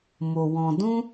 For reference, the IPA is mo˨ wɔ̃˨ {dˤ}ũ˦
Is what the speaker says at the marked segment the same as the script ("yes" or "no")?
no